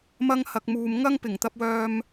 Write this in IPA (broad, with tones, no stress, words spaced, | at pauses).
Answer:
mɐ˥ŋhɐ˧k̚ muː˨mŋɐ˥ŋ pɪ˨˩ŋt̪ɐ˧p̚wœː˧m